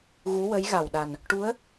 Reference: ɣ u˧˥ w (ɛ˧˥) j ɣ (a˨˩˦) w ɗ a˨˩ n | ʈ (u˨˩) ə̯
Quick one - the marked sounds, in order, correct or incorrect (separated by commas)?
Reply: incorrect, incorrect, incorrect